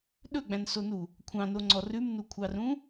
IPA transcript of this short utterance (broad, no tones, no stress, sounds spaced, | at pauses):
ɗ ɵ ɡ͡b æ̃ n s o n u | kʷʰ ɑ̃ n o ŋ͡ǀ ɔ r ʉ m n u kʷʰ ɑ r ũ